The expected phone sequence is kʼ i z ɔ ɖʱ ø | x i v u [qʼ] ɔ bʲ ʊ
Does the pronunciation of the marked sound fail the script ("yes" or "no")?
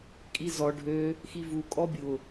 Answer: yes